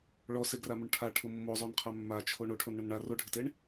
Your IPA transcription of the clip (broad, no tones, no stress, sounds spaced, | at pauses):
ɭ ɔ s e ɡ r a m ʊ ɳ ʈʰ a ʈʰ ʊ mː o zˤ o n qʰ a mː a t͡ʃʰ o ɳ o ʈʰ o n ɳ ʊ n ɳ a r o ɖʱ ɪ t e ɳ